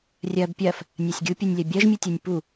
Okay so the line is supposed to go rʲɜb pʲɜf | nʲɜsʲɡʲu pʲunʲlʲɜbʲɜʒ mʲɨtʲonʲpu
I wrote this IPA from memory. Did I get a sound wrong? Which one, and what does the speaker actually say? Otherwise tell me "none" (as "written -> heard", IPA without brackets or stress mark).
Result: none